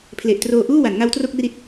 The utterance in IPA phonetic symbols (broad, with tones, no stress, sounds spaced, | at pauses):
pʰ l e˨˩ ʔ t r oː˧ ʔ uː˥˩ w a˩˦ n ŋ a˦˥ w t r o˥˩ k̚ r i˦˥ t̚